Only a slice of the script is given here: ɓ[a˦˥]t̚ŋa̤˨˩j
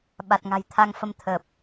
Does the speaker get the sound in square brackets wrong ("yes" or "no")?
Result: yes